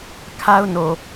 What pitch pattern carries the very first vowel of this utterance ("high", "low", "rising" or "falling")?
high